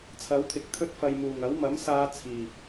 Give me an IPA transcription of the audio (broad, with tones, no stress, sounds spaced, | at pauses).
t͡sʰ ɐ˨˥ w t̪ʰ ɪ˨ k̚ t̪ʰ ɵ˥ t̚ f ɐ˨ j m uː˨˩ ŋ ɐ˨˥ w m ɐ˨˥ m s aː˧ t͡sʰ iː˨˩